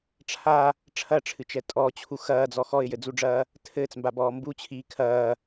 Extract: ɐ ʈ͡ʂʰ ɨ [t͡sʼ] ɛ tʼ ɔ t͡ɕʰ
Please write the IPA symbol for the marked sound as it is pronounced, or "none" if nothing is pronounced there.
t͡ʃ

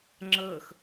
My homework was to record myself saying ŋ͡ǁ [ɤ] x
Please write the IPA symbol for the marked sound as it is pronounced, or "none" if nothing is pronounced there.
ɤ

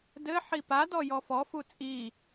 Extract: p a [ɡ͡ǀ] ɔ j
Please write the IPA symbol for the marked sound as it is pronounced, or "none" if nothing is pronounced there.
d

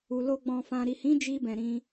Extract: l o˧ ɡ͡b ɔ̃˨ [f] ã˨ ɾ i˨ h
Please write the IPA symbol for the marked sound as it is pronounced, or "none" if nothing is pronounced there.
f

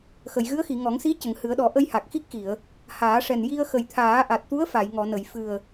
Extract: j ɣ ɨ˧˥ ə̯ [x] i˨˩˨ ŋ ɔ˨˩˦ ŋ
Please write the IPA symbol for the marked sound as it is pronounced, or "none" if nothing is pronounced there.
x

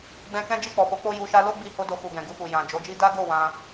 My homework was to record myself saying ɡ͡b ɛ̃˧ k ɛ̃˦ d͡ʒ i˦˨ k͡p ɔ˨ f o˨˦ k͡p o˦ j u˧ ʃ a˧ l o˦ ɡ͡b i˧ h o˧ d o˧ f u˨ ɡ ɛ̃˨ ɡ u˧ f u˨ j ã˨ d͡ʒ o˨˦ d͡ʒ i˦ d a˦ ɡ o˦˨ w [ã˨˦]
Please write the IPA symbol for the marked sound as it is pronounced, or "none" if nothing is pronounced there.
ã˧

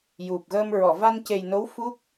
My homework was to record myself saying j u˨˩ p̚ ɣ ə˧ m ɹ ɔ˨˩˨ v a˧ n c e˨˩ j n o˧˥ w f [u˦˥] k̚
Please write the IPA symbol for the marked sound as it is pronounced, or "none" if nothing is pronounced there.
u˦˥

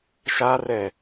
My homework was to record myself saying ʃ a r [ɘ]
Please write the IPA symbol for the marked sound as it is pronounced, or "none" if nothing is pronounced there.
ɛ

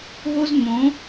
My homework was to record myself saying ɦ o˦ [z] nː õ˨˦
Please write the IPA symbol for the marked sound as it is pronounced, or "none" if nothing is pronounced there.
z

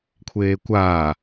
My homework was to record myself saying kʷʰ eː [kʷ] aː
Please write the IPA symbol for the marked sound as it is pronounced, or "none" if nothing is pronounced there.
kʷ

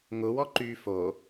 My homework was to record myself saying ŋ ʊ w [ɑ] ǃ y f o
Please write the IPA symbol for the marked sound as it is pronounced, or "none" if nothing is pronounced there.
ɔ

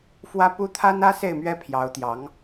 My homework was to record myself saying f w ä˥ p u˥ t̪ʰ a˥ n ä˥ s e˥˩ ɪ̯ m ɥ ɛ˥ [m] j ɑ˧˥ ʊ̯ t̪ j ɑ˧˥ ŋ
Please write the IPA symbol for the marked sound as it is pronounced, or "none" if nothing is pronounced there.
pʰ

